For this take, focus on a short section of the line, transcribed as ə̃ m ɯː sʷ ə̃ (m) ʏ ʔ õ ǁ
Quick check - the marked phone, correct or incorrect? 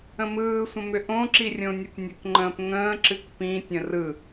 correct